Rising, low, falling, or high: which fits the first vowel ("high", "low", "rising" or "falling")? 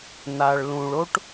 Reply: low